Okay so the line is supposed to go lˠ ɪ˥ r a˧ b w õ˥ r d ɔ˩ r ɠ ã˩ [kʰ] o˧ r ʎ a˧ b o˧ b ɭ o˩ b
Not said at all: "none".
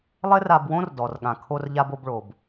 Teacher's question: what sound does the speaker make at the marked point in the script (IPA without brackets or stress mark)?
kʰ